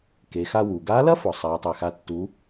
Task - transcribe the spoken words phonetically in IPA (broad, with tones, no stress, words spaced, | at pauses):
ke˩˧xa˧ wu˩ɡa˧˥lɐ˥ fɔ˩sˤa˩˧ tˤɛ˩xa˩˧tːu˩˧